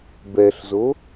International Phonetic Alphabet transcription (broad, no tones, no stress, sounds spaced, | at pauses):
b ɛ ɬ z o